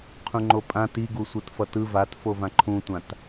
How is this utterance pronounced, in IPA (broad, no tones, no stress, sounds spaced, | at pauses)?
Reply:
qʰ ũ ŋ͡ǃ o pʼ ã t i ɡ u sʷ ɯ t f ʌ t ɯ v a t f o v ã ǃʰ ũ tʷ ã t